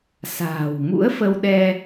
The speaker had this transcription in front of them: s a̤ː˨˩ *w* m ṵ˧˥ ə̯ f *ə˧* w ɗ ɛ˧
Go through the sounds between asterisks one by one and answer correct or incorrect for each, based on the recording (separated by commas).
correct, correct